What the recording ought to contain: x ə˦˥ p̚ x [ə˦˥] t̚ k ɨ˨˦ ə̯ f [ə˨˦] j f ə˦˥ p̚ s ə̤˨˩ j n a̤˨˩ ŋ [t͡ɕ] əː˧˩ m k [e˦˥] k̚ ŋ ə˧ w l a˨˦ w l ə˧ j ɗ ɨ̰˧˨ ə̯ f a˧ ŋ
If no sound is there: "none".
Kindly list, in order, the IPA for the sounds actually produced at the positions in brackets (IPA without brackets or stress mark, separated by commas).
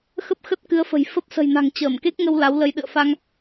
ə˦˥, ə̤˨˩, t͡ɕ, e˦˥